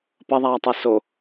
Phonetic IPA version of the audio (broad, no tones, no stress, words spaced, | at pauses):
pɐðˤaːtˤɛ so